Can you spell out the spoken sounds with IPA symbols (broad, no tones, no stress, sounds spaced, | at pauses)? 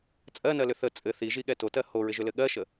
t͡sʼ ɜ n ɜ l ʏ θ ə t͡sʼ ɘ θ i ʒ i ɠ ɛ t o t ɜ h o ɹ ɪ ʒ ʏ l ɘ ɠ ɜ ʃ ə